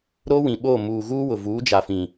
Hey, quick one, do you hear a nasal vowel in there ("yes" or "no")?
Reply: yes